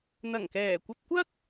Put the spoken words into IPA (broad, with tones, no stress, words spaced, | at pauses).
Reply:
n̪ɐ˨˩ŋkɛː˨˩kʷɐ˧p̚kʷɐ˥k̚